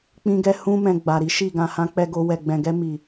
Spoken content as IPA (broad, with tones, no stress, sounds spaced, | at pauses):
k͡p ĩ˧ ɡ ɛ˧ h ũ˧ m ɛ̃˨ ɡ͡b a˨ ɾ i˨˦ ʃ i˦˨ ɡ ã˨ h ã˨˦ k͡p ɛ˧ ɡ o˧ w ɛ˨ ɡ͡b ɛ̃˨ ɡ ɛ˧ m i˨